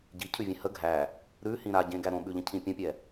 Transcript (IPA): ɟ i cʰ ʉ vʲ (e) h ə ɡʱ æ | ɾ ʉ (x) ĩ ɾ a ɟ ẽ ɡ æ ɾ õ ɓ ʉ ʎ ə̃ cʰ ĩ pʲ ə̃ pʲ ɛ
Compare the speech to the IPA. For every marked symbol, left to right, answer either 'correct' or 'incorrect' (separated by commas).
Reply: incorrect, incorrect